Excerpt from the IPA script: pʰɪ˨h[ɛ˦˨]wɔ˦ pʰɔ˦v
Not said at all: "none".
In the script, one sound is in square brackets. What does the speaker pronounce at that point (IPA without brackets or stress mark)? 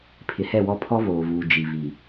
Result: ɛ˦˨